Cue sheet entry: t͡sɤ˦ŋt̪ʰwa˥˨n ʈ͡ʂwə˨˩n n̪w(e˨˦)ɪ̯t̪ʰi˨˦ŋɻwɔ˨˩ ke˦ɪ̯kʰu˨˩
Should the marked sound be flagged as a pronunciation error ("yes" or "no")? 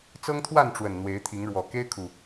no